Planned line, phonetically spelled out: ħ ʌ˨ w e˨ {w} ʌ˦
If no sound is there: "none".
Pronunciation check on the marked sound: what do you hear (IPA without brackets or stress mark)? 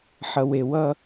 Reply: w